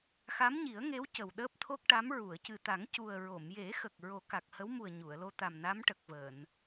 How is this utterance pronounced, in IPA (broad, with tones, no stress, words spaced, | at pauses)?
xa˧˥mɲi˨˩˦ə̯ŋe˧˥w cə˨˩wɗəː˦˥p̚t̪ʰo˦˥k̚ʈa˧˥m ɹu˨˩˨ə̯cɨ˨˩t̪a˨˩˦ŋ cu˨˩ə̯ ɹo˨˩˨m je˨˩˦xə˨˩k̚ ɹo˨˩˦ka˨˩k̚hə˧˥wmu˨˩ə̯ ɲu˨˩˨ə̯lo˧t̪a˨˩m na˧˥mʈə˨˩k̚vəː˨˩˨n